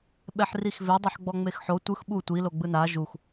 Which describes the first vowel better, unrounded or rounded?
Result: unrounded